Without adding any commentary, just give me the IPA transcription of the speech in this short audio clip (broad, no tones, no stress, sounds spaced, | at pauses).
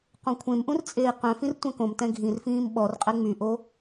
q õ kʷʰ ẽ m ʔ ũ r t͡sʼ eː q œ̃ f ĩ r tʷ ɛ̃ k õ m t ɛ̃ ɡʱ ĩ r f ĩː m ɓ ɔ r qʼ ɛ ŋ͡m y ʔ o